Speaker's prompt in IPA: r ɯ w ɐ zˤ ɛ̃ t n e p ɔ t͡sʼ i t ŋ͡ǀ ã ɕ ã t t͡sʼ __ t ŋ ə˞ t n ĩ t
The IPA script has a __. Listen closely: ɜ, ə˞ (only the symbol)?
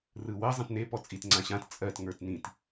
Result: ɜ